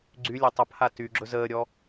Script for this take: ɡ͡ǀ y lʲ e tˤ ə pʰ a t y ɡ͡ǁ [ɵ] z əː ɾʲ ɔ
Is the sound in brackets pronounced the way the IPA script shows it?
yes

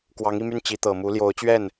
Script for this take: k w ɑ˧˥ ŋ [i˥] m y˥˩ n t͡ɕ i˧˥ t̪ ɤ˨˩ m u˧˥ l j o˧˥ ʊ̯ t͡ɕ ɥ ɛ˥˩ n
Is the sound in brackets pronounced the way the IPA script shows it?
no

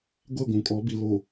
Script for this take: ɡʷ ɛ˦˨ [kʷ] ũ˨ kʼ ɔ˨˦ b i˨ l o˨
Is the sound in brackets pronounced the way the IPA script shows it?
no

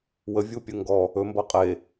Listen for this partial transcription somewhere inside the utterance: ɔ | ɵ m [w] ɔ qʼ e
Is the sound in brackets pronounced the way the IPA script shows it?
no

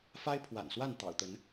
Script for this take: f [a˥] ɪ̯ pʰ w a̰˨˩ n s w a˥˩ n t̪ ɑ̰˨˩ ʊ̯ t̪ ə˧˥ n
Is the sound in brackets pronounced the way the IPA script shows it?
yes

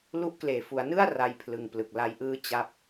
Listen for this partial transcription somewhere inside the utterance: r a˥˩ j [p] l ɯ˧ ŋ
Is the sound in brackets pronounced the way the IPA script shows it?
no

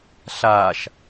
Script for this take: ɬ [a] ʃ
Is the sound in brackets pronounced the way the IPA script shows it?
yes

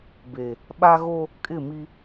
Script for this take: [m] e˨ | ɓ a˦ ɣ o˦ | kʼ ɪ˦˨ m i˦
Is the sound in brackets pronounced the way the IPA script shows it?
no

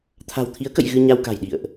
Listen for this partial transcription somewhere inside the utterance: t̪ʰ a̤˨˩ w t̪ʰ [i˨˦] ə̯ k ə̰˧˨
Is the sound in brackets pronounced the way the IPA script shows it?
yes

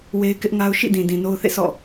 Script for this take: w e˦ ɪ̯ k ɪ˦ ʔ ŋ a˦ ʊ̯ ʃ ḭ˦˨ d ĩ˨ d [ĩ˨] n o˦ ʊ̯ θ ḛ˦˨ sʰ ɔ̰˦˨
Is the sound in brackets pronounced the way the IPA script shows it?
yes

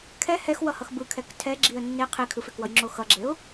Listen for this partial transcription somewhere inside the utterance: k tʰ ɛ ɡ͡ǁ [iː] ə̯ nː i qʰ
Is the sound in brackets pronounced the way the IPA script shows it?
no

